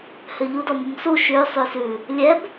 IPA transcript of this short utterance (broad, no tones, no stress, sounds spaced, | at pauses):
h ø ʎ u d ɔ m u m s u ʃ ʉ sˤ ʉ s ʉ | lʲ ɛ b